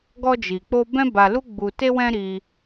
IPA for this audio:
ɡɔ˧d͡ʒi˨k͡po˧ bɛ̃˧ ba˨lu˧ ɡ͡bu˨te˧wɛ̃˧ ɾi˧

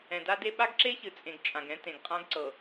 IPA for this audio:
ɛ̃˨da˦de˦ ɓa˦ɡǁe˦çɨ˨t͡sʼẽ˨ɡ t͡ʃʼã˨ɡɛ̃˦ tẽ˨ɡqʼã˦ɡǀɤ˨

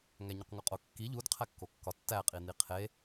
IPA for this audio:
ŋæɲuqŋoqʼo kːi ʎud qʰækːokːɒ tːæqʼi niqʰe

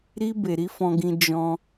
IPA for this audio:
ɾi˧ be˨ɾi˨˦fɔ̃˧ɡĩ˧ d͡ʒɔ̃˧

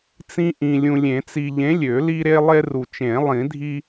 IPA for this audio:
t͡sĩ˦ʔĩ˨ lʲũ˨lʲẽ˨˩˦t͡si˨ʎẽ˨˥ lʲø˨˩˦li˦ɾe˦lˠe˦ ru˨t͡ʃẽ˨˩˦lˠĩ˨˩˦dʱi˦

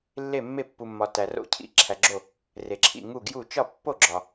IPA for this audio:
lːe˧˩mːe˧˩pːu˩mːɒ˩ tæ˩ro̰˧˩cʰḭ˧˩ ǁʰæ˩ɡ͡ǁo˧˩ | re˩ǁʰḭ˧˩ ŋu˧˩ɡju˧˩ t͡ʃɒ˧˩pːo˧˩ɡ͡ǁɒ˩

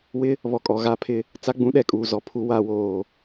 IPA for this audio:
wɪ˦ | βɔ˨kʼɔ˨ɣa˦˨pʰɪ˦ | t͡sa˦ɡ͡bũ˦ɗɛ˨kʼuː˨ zɔ˨pʰu˦wa˨˦woː˨

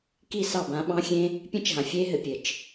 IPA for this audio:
ki˦˨sɑ˦˨bã˨˦ ɓɑ̃˦xʲẽ˦ | pʲẽ˦t͡ʃɦã˨fʲeː˦ɦɘ˨ pʲɘ˨t͡ʃ

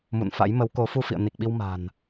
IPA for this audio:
mṵ˧˨nfa̰˧˥j mə˨˦wko˨˦ fu˧fḭ˧˨ə̯ ni˨˩k̚ɓi˧w ma̤˨˩n

